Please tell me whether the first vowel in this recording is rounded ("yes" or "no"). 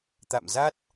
no